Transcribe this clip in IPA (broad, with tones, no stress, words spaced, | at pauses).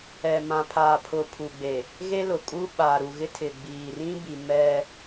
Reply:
ɛ˨mã˨pʰaː˨pʰʊ˨ pʰu˨ɡ͡be˨ | ɣe˦lʊ˨ kʼu˦ɓa˨ɾu˨ ɣɪ˦tʰɪ˨ɡ͡biː˨ rĩ˦bi˨ mɛ˦